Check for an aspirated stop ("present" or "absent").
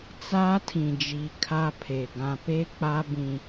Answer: present